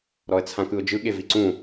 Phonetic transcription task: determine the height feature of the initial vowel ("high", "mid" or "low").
mid